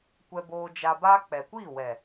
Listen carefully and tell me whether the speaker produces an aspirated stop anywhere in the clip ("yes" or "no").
no